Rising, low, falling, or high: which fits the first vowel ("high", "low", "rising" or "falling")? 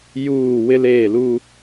falling